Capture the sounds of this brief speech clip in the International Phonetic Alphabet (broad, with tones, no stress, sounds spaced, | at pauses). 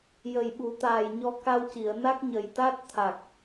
j ə˨˩ j ɓ u˨˩˦ t̪ aː˨˩ j ɲ ɔ˧ k a˧ w c i˨˩˨ ə̯ n a˦˥ k̚ ɲ ə˨˩ j t̪ a˦˥ t̚ t̪ʰ a˨˩ k̚